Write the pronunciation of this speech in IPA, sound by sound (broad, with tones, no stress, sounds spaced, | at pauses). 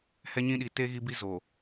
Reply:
h ɛ˦ ɲ ĩ˦ ɗ i˨ t e˦ ɣ i˦ b i˦ z o˨